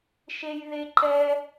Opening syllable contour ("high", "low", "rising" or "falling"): high